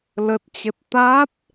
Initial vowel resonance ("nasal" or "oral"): oral